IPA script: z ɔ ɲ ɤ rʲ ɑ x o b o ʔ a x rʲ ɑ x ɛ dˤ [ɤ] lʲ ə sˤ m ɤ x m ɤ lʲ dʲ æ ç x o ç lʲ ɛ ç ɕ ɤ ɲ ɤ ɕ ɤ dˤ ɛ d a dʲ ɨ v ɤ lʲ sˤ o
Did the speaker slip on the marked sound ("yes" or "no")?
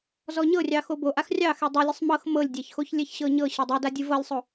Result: no